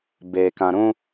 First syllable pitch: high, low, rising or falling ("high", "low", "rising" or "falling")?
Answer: low